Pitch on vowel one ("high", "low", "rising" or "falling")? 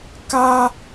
high